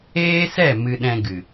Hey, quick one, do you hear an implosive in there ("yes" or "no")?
yes